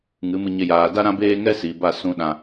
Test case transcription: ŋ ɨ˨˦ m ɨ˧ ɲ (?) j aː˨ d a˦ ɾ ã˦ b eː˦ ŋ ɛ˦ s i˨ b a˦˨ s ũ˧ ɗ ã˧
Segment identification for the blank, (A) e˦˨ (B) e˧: B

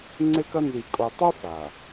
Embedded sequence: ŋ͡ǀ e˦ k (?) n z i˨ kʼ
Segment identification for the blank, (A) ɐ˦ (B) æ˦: A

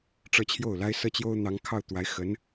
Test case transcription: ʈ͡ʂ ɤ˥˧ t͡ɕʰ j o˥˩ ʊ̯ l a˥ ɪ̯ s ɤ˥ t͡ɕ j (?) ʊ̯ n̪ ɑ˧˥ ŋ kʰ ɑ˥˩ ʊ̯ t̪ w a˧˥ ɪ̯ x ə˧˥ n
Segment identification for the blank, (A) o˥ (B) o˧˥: A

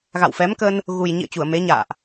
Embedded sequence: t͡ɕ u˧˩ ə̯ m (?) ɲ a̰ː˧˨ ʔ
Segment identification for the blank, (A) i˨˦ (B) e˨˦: B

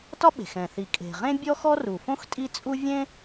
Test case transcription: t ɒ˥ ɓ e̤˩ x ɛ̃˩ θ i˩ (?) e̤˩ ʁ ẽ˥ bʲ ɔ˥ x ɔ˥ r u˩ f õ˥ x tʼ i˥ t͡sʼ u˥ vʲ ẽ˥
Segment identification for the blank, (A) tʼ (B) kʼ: B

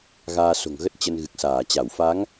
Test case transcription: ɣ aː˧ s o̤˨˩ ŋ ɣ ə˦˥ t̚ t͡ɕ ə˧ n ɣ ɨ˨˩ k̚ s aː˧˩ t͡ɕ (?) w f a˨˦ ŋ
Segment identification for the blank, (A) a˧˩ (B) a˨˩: A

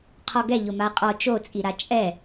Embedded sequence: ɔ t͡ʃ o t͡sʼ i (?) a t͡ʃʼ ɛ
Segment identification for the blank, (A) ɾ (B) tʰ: A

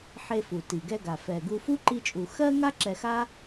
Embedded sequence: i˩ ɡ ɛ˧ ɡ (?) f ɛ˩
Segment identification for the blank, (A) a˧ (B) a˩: B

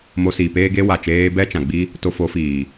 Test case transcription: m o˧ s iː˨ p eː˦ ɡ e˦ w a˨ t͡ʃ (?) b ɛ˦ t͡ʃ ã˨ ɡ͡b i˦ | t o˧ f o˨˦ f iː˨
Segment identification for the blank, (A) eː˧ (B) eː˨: A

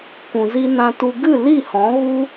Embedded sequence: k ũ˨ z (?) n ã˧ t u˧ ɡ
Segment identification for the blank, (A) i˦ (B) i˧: B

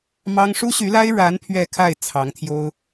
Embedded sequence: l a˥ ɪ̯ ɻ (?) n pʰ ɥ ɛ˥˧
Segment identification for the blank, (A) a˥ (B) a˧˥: B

